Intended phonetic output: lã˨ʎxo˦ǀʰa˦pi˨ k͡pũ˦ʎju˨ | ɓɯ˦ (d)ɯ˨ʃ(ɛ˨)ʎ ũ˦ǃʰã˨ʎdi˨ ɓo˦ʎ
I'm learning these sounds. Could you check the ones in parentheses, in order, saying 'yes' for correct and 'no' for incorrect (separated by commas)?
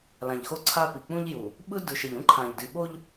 yes, yes